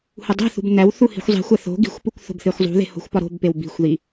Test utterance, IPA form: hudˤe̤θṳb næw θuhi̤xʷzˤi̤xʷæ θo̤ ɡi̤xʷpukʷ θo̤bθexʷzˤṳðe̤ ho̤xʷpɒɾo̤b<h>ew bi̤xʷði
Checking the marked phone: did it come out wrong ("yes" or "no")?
yes